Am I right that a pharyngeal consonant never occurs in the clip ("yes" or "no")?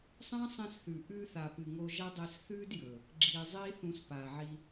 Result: no